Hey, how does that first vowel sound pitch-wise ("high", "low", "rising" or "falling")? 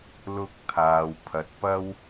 high